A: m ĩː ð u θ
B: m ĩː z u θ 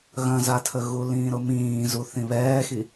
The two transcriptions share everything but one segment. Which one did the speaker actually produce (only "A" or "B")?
B